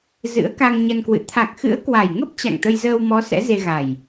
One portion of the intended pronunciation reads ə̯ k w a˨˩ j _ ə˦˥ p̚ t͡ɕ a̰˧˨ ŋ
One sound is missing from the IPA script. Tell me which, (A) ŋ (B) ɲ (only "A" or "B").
A